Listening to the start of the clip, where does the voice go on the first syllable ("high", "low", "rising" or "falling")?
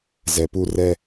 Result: low